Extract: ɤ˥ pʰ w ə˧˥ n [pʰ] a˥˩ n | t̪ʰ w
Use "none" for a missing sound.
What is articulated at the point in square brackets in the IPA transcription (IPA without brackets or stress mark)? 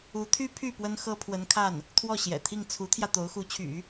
kʰ